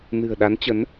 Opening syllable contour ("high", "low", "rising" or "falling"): low